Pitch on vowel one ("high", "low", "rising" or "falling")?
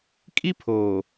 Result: high